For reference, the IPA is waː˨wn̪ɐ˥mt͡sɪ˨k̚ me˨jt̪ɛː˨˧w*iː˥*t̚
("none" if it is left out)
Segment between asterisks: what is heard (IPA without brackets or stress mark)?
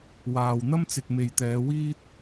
iː˥